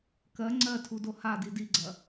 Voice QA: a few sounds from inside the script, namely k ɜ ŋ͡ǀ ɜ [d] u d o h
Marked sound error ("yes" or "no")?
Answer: yes